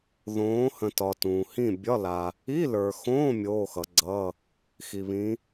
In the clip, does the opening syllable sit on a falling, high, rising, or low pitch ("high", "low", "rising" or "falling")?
rising